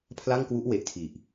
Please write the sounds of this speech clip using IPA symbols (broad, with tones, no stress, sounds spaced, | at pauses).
pʰ l a˥˩ ŋ k w u˦˥ ʔ w e˨˩ ʔ tʰ i˨˩ ʔ